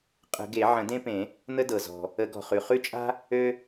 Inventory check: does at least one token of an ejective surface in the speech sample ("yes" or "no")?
yes